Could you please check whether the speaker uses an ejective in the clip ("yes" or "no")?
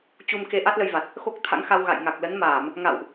no